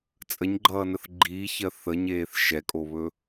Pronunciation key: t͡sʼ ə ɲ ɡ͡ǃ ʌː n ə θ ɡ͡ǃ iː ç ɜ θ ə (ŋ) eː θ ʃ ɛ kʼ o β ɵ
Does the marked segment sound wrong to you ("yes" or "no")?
yes